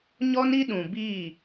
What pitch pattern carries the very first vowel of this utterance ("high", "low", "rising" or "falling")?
high